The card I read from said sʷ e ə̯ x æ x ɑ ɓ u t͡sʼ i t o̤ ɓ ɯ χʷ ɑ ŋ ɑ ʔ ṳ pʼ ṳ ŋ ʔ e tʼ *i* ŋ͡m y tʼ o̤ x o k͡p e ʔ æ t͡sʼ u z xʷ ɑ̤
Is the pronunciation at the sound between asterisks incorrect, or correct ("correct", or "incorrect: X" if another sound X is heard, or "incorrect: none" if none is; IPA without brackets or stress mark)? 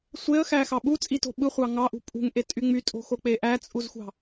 incorrect: y